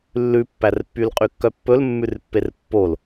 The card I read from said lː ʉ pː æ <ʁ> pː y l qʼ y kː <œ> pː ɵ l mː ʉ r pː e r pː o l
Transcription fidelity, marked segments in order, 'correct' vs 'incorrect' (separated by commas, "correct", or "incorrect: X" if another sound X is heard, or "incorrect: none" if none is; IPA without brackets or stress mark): incorrect: r, correct